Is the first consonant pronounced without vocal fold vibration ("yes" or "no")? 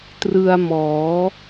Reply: yes